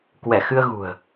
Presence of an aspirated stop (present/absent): absent